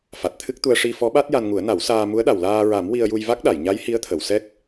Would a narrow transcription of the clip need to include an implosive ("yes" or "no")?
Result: yes